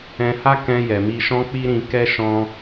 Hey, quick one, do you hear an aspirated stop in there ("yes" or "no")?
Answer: no